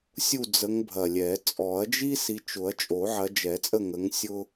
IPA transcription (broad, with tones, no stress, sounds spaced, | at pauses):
sʲ u˦˨ d͡z ə˨˦ ŋ bʱ ɐ˨˩ lʲ ɛ˨˩˦ t͡sʼ ɔ˨˩˦ ɐ̯ d͡ʒ i˥ s i˨˦ t͡ʃ ʊ˨˩˦ ɐ̯ t͡ʃʼ o˨˩˦ ʕ ɐ˨˦ d͡ʒ ɛ˨˩˦ t͡sʼ ə˦˨ ŋ ə˨˦ ŋ sʲ ʊ˥